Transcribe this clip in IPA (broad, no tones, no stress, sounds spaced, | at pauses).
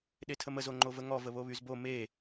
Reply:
ɗ e tʰ ə m ə z o ŋ͡ǃ o v ə ŋ ɔ v ə β o β y z b o m e